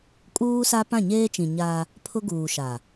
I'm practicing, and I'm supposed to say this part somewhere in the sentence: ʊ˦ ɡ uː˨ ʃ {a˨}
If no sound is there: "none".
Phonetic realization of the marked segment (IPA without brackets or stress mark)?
a˨